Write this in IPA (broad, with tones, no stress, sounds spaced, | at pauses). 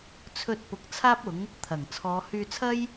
t͡sʰ ɵ˧ t̚ p ʊ˨ k̚ t͡sʰ aː˥ p̚ ʊ˨˥ ŋ | t̪ʰ ɐ˨˩ ŋ t͡sʰ ɔː˨˧ h yː˧ t͡sʰ ɐ˥ j